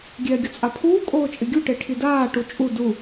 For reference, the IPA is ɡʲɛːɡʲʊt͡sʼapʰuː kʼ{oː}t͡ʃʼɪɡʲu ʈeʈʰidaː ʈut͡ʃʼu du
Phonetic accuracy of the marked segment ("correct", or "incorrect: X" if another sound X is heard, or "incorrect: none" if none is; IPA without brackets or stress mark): correct